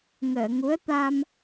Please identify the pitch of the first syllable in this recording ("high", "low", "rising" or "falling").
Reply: low